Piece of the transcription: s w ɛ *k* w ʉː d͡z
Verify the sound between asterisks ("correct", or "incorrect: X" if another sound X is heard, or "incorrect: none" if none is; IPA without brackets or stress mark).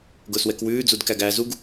correct